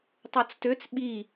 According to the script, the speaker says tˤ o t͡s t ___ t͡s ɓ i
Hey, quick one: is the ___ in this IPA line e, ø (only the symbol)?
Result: ø